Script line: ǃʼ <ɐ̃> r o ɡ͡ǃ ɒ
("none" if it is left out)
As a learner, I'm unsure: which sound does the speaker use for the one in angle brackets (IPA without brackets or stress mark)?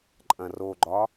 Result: ɐ̃